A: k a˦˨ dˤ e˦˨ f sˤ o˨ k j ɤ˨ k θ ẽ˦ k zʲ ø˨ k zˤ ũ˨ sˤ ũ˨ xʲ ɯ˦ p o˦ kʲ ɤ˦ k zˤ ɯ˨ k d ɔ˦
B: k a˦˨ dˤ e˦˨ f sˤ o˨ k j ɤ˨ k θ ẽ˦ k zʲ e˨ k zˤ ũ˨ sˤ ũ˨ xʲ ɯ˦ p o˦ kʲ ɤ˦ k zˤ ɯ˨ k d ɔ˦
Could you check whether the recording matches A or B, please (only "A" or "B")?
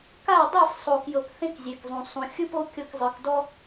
B